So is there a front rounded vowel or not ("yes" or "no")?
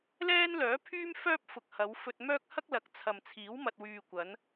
yes